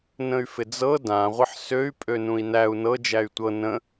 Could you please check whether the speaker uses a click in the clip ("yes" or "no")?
no